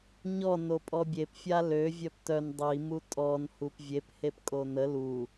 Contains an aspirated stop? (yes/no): no